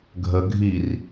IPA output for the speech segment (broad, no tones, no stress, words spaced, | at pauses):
ɡʱə ɡʱir